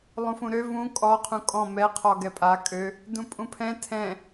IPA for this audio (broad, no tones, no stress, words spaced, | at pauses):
lˠũfũɾø vũ kʼɔ qʰũkʼɔ̃ mɛ qʰɔɡɛpʼa kʼø | dũpʼũpʰɛ̃ tʰɛ̃